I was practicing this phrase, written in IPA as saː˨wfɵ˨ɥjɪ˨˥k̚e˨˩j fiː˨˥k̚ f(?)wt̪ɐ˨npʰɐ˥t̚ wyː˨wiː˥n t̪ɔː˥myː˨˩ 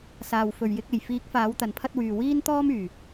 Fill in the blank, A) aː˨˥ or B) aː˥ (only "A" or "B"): A